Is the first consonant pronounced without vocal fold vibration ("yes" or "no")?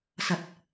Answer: yes